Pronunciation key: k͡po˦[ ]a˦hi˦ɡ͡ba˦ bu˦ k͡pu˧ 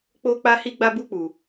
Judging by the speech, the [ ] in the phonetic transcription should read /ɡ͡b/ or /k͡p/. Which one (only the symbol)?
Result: k͡p